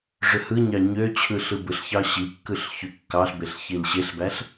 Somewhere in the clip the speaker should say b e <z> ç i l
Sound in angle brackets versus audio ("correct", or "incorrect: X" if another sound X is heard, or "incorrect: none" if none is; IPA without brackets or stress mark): incorrect: ɬ